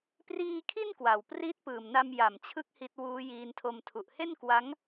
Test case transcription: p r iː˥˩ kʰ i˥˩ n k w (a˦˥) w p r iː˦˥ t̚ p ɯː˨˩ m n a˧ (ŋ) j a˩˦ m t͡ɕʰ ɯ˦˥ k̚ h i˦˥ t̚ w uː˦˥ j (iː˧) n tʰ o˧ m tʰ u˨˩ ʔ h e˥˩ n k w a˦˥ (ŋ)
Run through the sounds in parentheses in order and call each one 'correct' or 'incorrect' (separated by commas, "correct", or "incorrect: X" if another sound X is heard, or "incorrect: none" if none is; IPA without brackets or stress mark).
incorrect: a˨˩, incorrect: m, correct, correct